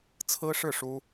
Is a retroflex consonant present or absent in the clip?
present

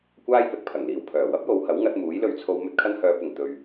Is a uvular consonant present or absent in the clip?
absent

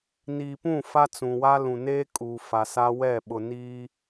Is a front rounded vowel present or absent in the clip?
absent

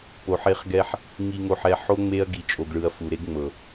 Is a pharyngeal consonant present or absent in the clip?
present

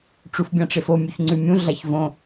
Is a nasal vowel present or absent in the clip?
present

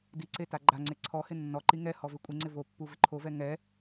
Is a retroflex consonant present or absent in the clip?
absent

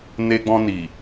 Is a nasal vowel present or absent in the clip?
present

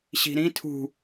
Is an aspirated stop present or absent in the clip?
present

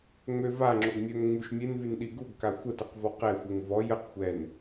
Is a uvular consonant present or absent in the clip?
present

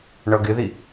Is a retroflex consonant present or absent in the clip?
present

